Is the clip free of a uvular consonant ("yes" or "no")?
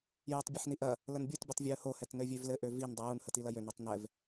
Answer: yes